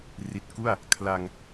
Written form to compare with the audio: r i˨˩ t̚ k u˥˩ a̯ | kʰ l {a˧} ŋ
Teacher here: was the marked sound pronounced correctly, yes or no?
yes